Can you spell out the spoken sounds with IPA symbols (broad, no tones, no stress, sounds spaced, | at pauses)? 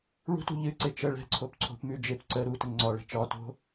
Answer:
ɭ ṳ t ṳ ʎ ɨ ǀ e t͡ʃ ə ɭ ɛ̤ ǀʰ o p ǀʰ o̤ p m ʉ d͡ʒ e p ǀ ə ɾ u t ə ŋ͡ǀ ɒ ɭ ɛ̤ t͡ʃ ɒ t o̤